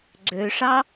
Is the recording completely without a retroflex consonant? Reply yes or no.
no